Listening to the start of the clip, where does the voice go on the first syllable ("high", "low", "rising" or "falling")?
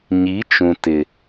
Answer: rising